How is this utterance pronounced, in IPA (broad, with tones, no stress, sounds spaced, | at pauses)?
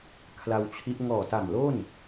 kʰ l a˧ w t͡ɕʰ i˦˥ ʔ ŋ ɔː˨˩ t a˨˩ m l o˥˩ n